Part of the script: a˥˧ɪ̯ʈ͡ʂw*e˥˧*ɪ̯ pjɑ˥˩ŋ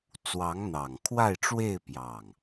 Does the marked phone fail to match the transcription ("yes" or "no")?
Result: no